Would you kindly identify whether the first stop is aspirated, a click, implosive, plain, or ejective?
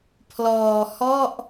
aspirated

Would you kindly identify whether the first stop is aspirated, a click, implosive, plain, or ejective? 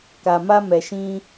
plain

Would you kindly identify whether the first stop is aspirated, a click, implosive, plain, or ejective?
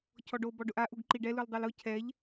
aspirated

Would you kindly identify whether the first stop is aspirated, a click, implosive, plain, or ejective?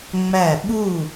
implosive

